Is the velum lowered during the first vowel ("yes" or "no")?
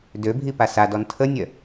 no